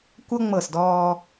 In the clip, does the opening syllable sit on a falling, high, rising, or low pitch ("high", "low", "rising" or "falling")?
high